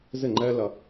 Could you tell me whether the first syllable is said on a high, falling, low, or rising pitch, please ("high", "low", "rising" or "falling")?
falling